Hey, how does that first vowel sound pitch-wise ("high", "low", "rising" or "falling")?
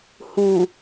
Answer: low